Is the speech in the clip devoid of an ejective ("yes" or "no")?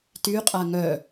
no